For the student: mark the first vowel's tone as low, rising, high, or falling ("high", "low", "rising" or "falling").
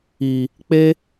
low